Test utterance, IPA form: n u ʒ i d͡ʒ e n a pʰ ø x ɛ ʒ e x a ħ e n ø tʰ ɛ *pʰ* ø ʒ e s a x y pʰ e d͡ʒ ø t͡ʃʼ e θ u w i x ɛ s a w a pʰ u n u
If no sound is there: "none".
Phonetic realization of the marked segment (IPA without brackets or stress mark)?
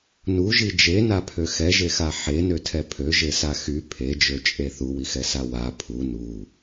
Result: pʰ